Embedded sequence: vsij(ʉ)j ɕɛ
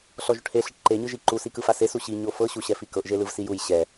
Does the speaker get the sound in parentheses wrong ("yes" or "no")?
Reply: yes